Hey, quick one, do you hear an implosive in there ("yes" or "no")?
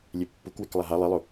no